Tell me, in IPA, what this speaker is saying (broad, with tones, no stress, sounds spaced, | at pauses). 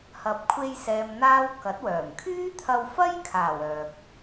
h ɐ˨ p̚ kʷʰ e˧ j s ɛː˨ m n̪ aː˥ w k ɐ˨˥ t̚ w œː˨˩ m kʰ yː˥ t̪ʰ ɐ˧ w f ɐ˥ j kʰ aː˨˩ w œː˨ k̚